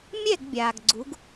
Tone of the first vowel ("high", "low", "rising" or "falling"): falling